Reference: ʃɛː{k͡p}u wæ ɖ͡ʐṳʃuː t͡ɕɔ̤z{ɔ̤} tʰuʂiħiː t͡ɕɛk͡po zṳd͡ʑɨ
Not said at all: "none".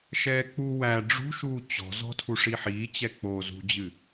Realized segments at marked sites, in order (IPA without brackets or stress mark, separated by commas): k͡p, ɔ̤